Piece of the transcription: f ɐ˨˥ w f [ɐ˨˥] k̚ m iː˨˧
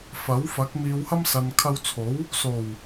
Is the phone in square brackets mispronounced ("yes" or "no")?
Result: no